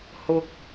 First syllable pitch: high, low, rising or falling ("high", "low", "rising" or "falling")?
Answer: low